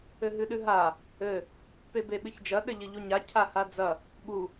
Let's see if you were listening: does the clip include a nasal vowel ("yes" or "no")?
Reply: no